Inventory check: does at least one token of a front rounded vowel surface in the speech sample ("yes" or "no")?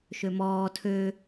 yes